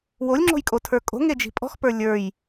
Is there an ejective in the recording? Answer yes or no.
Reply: yes